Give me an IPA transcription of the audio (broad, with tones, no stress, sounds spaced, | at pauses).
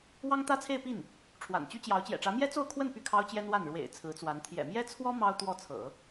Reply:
w ɑ˥ ŋ t̪ ä˥ t͡sʰ e˥˧ ɪ̯ p i˥˩ n | ʈ͡ʂʰ w a̰˨˩ n t͡ɕ y˥ t͡ɕ j ɑ˧˥ ʊ̯ t͡ɕ j ɛ̰˨˩ ʈ͡ʂ ä˧˥ m j ɛ˥ t͡s o˥˧ ʊ̯ kʰ w ə˥˧ n p y˥˩ kʰ ɑ˥ ʊ̯ t͡ɕ j ɛ˥ n w a˥˩ n ɻ w ḛ˨˩ ɪ̯ t͡sʰ ɹ̩˧˥ t͡s w a˧˥ n t̪ʰ j ɛ̰˨˩ m j ɛ˥ t͡sʰ w ɔ˥ m ɑ˥ ʊ̯ t̪ w ɔ˥˩ t͡sʰ ɤ̰˨˩˦